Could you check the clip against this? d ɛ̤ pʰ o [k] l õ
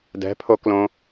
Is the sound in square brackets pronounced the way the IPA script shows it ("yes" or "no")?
yes